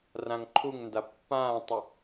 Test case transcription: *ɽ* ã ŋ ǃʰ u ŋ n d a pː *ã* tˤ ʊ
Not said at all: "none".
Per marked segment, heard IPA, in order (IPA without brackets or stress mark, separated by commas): r, ãː